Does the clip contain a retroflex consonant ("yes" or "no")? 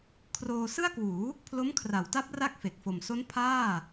no